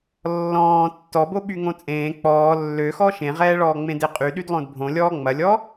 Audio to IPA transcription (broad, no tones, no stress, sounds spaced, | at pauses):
lː ɔ̃ː tː ɔ b o ɓ y ŋ õ t͡sʼ ẽː k͡p ɔː lː ø x ɔ ʃ ẽ ʁ ɛː ɭ ɔː ŋ͡m ẽ d e qʼ y ɗ y d lˠ õ d bʱ õ lʲ ɔː ŋ͡m ɐ lʲ ɔ